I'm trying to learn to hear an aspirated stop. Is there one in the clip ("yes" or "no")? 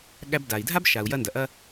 no